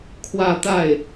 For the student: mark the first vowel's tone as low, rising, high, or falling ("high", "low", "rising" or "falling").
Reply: falling